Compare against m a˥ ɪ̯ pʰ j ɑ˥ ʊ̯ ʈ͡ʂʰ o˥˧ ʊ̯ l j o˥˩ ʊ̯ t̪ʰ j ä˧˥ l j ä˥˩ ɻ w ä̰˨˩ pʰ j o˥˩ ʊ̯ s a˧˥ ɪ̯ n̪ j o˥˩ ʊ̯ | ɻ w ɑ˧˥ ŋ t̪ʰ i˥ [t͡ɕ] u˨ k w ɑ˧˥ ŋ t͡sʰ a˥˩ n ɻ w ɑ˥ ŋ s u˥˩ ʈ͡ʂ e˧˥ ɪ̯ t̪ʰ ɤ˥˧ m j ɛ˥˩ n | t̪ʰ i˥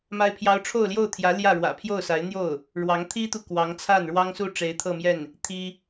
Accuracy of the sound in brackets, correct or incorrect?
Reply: incorrect